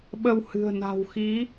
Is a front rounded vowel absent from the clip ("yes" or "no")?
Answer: yes